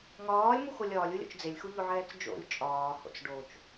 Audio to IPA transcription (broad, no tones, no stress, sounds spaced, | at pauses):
ŋ ɒː lʲ m u x o lʲ ɒː lʲ u lʲ o̰ t͡ʃ d͡z e lʲ x u ʎ o ʕ ɛː t͡s d͡ʒ o̰ lʲ t͡ʃʼ ɒː h o̰ t͡s ɖ o t͡ʃ